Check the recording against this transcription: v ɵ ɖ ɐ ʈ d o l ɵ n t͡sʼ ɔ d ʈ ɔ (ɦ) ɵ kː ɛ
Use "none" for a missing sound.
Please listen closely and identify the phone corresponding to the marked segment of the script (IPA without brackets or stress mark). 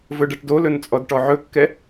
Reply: ʕ